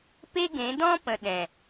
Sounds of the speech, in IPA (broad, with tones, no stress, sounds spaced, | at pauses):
p e˦ ɡ ẽ˨˦ d ɔ̃˦ p ə̃˨ ɗ ɛ̃˨